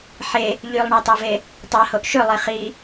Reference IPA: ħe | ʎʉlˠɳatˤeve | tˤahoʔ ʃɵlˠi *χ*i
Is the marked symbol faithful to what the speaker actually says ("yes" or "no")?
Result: yes